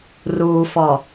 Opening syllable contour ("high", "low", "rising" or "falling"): low